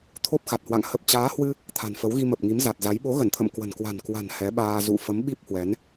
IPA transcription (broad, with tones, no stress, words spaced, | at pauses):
t̪ʰo˦˥p̚xa˨˩t̚hwa̰˧˨ŋ hə˨˩p̚t͡ɕaː˨˦hwɨ˧ | t̪ʰa̤˨˩nfə˨˦wɣi˧ mə˨˩p̚ŋi˨˦mza˨˩t̚za˨˦j ɓo˨˦ɣə˧˩nt̪ʰə̰˧˨m kwə̤˨˩nkwa̤˨˩n kwa̤˨˩n hɛ˨˦ɓaː˧ zṵ˧˨ fə˨˦mɓi˦˥p̚hwɛ˨˦n